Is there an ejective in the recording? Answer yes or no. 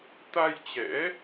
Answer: no